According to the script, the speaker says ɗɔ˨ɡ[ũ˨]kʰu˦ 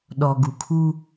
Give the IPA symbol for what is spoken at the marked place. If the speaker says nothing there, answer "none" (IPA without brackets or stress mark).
u˨